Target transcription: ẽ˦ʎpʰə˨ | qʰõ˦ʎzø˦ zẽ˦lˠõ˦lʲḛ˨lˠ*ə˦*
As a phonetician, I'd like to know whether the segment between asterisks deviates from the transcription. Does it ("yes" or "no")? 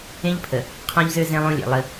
no